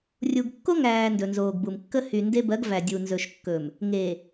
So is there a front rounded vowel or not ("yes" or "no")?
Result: yes